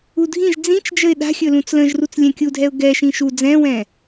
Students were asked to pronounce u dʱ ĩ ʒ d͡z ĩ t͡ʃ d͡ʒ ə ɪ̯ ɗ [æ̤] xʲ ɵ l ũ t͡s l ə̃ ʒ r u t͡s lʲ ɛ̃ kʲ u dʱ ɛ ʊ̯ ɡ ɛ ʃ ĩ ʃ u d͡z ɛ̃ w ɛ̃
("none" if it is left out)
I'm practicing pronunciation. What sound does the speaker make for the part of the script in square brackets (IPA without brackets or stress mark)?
a̤